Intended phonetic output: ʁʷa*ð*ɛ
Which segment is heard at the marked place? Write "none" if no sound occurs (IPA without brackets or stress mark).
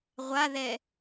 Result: ð